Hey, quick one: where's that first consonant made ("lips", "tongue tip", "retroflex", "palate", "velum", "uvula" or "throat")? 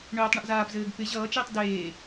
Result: retroflex